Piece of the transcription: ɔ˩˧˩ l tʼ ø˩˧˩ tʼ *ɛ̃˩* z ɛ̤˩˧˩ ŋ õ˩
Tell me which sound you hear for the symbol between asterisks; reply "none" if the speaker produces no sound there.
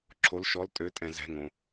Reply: ɛ̃˩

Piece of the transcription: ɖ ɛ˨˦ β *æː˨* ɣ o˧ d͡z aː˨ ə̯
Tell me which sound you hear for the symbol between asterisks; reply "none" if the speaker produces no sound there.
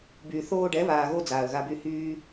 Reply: aː˨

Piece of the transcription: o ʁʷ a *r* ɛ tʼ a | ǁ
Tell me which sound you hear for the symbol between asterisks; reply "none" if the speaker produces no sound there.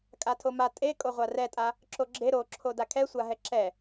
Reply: r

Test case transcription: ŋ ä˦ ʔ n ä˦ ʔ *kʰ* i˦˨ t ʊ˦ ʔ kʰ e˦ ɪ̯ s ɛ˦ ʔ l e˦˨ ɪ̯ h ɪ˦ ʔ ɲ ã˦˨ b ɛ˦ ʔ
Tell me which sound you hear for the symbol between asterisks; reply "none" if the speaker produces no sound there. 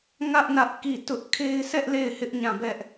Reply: k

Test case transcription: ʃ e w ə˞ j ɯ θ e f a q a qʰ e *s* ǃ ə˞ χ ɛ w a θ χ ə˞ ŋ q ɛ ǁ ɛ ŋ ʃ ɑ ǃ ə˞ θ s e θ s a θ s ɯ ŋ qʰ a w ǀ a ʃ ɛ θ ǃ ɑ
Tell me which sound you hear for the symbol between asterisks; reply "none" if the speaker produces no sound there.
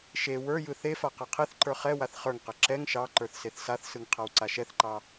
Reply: θ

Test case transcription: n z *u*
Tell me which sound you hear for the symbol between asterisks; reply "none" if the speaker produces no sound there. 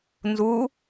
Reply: u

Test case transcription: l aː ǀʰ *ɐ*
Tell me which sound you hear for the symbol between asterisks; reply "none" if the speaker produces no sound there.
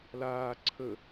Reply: ə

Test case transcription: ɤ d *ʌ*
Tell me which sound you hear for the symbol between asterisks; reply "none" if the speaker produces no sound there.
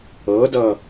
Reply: ʌ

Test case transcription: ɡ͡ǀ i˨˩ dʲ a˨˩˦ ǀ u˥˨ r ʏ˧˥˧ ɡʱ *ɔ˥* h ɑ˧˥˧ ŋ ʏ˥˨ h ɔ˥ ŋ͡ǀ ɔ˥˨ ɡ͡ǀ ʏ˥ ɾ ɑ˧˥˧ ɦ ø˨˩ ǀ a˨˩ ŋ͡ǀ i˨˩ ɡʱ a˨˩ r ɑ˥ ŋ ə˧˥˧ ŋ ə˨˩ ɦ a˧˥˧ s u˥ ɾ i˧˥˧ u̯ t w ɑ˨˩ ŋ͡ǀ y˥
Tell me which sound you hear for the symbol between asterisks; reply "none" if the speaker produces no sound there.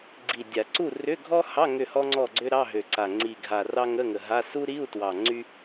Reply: ɔ˥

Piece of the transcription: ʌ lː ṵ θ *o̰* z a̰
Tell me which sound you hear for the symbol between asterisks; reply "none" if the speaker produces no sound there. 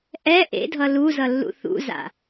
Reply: ṵ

